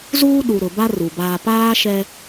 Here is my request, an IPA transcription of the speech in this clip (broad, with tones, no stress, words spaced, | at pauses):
zuː˦ɗu˨ ɾʊ˨ ba˦ ru˨baː˦ paː˦ ʃɛ˦